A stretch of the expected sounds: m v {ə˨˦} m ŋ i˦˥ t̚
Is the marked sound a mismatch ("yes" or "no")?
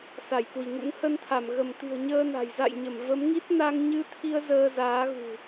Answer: no